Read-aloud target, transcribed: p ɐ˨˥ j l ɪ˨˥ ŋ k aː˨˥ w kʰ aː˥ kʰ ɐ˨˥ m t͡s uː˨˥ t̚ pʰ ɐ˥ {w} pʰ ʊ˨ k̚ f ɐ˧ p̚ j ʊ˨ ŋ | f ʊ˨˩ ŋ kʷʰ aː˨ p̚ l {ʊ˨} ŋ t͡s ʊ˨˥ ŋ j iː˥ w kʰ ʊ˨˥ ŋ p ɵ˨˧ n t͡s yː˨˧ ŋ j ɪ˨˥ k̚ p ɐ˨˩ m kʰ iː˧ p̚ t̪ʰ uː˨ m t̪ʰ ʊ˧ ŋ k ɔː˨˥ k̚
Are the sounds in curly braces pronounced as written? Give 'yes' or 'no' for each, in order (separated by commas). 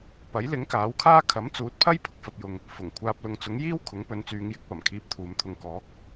no, yes